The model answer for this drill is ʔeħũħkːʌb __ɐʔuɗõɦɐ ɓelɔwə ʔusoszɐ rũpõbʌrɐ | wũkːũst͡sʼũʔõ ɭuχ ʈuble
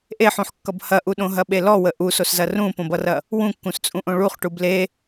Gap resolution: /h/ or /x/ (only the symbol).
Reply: h